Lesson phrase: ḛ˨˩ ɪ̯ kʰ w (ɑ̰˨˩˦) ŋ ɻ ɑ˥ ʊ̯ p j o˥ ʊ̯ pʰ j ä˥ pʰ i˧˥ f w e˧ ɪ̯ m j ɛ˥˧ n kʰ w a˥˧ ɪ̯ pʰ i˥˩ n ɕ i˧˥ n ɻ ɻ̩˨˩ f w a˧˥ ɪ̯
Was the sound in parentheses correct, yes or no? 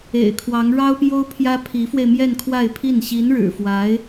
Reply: no